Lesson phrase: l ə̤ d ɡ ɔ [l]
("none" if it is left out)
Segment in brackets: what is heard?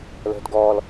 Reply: l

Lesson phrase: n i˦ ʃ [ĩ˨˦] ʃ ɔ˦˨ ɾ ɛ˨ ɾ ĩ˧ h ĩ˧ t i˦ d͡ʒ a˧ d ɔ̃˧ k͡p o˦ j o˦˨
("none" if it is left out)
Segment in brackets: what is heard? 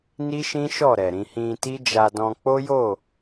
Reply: ĩ˦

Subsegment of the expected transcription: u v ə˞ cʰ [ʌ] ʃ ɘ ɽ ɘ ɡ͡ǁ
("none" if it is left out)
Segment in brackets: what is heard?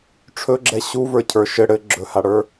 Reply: ə˞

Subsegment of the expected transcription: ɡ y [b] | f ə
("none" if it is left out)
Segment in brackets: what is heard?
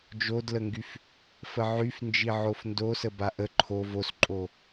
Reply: f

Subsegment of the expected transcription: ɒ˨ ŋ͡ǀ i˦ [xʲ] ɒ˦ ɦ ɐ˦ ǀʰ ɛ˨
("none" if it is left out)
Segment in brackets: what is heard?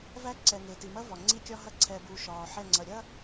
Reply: kʲ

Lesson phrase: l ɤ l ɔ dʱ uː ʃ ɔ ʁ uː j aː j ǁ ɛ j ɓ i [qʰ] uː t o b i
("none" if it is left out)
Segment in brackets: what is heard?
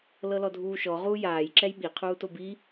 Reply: qʰ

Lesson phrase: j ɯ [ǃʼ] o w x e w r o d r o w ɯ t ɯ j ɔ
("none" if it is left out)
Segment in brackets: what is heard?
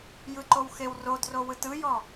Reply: ǃ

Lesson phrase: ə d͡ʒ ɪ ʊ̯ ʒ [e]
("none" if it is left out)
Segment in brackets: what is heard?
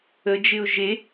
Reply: e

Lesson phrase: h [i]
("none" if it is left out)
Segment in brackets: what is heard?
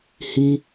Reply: i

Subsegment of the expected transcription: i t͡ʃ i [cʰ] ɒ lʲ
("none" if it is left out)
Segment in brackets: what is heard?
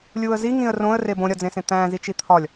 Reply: t̪ʰ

